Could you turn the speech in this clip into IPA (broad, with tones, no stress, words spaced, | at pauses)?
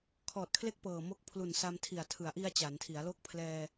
kʰɔː˨˩t̚kʰle˦˥k̚ pɤː˨˩mo˦˥k̚ pʰlu˨˩nsa˧mtʰi˨˩a̯ tʰɯ˩˦a̯ʔi˧a̯ t͡ɕa˩˦ntʰi˩˦a̯ lo˦˥k̚ pʰlɛː˧